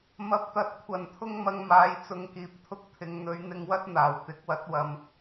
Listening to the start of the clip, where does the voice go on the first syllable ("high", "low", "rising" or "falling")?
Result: low